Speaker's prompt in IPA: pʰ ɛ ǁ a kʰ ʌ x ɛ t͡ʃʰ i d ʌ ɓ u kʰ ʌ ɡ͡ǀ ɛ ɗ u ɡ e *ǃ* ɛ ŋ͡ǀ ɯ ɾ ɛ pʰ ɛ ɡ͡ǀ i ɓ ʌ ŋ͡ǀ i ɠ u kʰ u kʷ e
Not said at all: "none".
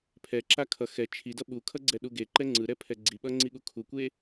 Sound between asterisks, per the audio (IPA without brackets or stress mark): ǃ